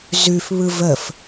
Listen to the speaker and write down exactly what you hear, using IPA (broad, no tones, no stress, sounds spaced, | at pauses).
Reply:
z ʉ f β ɯ v ə f